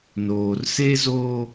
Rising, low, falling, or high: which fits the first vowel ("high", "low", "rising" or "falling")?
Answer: low